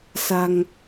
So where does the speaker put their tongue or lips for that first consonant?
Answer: tongue tip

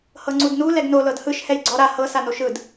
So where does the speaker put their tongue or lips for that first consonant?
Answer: throat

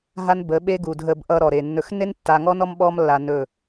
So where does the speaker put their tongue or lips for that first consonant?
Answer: throat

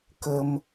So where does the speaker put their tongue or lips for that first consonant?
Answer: velum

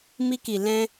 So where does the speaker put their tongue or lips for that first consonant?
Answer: lips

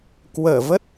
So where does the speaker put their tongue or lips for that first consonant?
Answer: velum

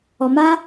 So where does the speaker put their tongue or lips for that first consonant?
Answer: lips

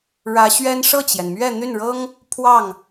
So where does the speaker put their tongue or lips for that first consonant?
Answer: retroflex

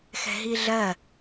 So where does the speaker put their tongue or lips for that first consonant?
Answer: velum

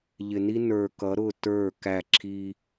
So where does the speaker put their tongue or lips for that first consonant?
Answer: palate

